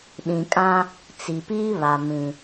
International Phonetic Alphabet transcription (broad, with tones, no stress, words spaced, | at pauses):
ɗĩ˨kʼã˦ | t͡si˨piː˦ βa˨ mĩ˨